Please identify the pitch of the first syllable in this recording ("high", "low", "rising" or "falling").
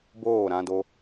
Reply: falling